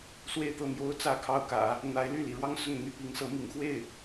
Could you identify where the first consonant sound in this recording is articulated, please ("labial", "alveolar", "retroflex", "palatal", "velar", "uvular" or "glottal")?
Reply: alveolar